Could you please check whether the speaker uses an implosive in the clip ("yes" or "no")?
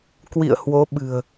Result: yes